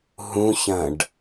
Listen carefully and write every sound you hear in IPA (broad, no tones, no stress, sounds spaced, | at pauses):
ɦ ũ ç ɐ̃ ɖ